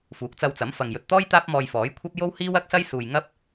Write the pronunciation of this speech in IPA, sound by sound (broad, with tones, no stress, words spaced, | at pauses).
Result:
fuː˨˥k̚t͡sɐ˧wt͡sɐ˨˥m fɐ˨ŋjɵ˨t̚t̪ɔː˥j t̪aː˥p̚mɔː˧jfɔː˨˥jkʷʰɐ˥p̚ jo˥whiː˥wɐ˥k̚sɐ˥j suː˨j ŋɐ˥p̚